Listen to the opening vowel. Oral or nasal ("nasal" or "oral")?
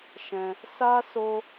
nasal